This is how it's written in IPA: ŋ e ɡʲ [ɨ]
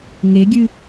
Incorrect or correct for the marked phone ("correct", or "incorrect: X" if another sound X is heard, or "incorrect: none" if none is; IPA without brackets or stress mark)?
correct